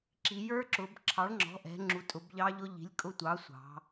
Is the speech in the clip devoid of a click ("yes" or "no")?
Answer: no